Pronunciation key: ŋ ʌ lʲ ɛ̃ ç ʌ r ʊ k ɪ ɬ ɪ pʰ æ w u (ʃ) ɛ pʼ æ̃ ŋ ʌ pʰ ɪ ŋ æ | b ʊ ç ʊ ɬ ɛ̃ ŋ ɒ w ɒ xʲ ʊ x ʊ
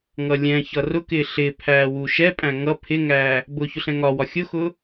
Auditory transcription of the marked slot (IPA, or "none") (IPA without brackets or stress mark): ʃ